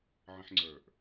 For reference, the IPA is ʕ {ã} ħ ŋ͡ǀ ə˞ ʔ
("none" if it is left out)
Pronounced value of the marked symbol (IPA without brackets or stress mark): ə̃